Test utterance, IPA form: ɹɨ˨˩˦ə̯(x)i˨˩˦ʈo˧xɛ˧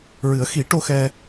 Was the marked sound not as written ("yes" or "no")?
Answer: no